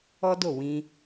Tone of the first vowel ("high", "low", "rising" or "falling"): high